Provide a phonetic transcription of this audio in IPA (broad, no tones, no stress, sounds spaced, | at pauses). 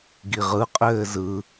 ɡ i ʁ ɯ qʼ ɘː z ɯ